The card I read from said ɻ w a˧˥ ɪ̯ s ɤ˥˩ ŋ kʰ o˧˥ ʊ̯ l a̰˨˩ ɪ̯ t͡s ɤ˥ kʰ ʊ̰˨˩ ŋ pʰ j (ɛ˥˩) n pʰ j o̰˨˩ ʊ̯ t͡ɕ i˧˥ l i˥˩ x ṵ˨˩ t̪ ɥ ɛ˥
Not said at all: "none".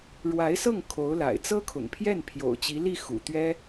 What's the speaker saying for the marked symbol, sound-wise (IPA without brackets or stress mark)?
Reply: ɛ˥˩